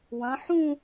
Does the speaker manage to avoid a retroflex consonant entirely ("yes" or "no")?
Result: yes